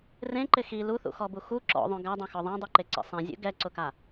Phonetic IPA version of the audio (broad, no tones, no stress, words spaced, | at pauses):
rẽǃɪ xi luθṵxɔbu xu ǁɔ̰ðˤõ ɡadˤõxɔ ðˤɛ̃dˤuǃeǀḭ sˤɛ̃zʲṵ ɡɛǀʊka